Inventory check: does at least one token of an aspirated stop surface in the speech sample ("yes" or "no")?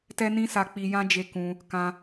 no